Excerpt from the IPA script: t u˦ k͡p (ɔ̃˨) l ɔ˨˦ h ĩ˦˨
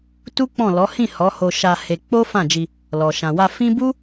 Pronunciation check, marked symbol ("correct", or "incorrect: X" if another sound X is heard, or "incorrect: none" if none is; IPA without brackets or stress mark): incorrect: ɔ̃˦˨